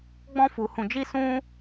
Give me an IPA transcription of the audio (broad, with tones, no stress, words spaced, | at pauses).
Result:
ɡ͡bɔ̃˦fu˧hũ˧d͡ʒi˦ sũ˦